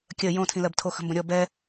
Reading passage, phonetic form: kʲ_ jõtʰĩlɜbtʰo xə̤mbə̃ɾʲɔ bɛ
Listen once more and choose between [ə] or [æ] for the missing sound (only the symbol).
ə